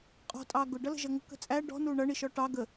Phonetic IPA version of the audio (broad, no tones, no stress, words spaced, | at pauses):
qʼɔ̤tʼɑː ɡʊɖʌlə̤ʒʌ ŋə̤kə̤ t͡sʼæ ɖɔ̤nuː ɳʌɳiʃɔ ʈɑ ɡə